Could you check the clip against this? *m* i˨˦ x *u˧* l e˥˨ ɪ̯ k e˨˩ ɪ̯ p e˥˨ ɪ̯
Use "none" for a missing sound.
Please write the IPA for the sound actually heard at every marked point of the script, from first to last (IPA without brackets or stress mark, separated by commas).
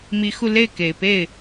m, u˧